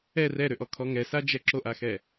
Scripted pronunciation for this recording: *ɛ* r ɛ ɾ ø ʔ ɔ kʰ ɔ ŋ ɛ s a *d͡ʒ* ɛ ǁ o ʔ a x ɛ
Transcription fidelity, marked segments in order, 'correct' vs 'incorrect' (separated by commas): correct, correct